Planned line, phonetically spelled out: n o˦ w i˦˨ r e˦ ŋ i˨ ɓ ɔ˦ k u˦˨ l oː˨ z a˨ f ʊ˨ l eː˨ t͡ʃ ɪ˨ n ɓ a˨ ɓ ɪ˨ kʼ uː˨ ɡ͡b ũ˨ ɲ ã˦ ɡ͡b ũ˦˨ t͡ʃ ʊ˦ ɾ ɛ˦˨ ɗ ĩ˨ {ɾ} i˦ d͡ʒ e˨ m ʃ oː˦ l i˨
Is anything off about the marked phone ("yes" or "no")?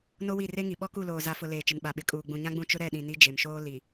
yes